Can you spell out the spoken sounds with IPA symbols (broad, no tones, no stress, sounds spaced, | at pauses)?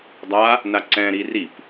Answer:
dˤ a | n a ǀ ɛ̃ ɾ i r i p